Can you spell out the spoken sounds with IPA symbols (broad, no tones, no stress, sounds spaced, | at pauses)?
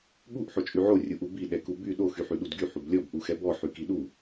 ɠ u ʔ ħ o t͡ʃʼ y ʕ o rʲ u ʔ u b i ɗ ɛ k u b y ɗ o x y ħ y ɗ u d ɡ y ħ u b lʲ ɔ b ʔ u x ɛ b ɔ ħ y k i ɗ u